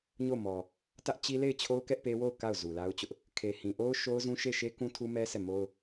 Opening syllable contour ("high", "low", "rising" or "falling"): falling